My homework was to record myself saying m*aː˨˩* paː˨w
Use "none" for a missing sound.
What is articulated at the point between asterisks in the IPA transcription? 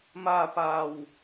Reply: aː˧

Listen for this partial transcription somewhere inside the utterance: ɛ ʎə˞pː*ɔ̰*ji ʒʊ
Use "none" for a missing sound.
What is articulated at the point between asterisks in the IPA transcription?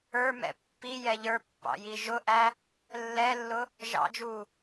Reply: ɑ̰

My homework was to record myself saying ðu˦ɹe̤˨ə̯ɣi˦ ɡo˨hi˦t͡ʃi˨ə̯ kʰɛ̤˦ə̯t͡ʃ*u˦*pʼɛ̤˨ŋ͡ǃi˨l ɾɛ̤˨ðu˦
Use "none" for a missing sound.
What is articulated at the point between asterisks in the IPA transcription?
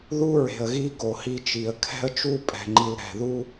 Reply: u˦˨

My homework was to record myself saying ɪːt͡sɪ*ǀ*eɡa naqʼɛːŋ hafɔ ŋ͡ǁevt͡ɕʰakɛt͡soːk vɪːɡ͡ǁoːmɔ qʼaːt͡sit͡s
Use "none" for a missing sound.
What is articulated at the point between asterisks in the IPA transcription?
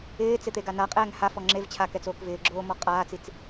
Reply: t̪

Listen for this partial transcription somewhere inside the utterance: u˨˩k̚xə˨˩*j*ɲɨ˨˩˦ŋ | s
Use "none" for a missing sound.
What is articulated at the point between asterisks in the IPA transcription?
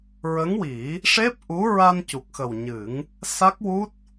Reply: w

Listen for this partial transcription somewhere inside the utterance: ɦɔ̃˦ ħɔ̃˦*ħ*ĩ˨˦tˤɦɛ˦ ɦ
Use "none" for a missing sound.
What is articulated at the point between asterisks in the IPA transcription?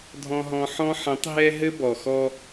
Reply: ħ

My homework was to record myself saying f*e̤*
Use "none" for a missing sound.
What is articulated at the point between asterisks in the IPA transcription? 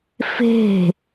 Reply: e̤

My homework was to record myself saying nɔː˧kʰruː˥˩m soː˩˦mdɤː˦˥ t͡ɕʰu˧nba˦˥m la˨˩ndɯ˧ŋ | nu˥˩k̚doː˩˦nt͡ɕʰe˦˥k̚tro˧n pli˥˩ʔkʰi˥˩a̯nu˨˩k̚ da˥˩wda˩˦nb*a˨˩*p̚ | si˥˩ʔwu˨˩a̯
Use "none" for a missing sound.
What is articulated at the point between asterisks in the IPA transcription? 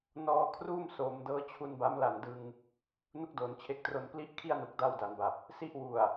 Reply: a˨˩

